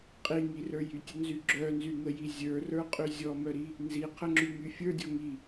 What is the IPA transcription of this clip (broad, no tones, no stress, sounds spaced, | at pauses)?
qʼ i ŋ i r ə˞ j y tʲ ə n z y ɡ͡ǁ œ n z y ŋ ə j i zʲ ə˞ r ə˞ qʼ y zʲ ɔ m œ ɾ i | n z i qʰ ə ŋ͡ǁ y ŋ y fʲ ə˞ dʲ ɔ ŋ i